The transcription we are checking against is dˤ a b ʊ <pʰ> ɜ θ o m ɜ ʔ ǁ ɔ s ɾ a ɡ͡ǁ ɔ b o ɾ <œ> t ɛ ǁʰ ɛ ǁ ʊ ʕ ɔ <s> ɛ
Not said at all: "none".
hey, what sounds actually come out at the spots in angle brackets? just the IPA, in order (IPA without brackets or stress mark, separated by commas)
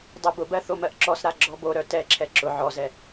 b, œ, z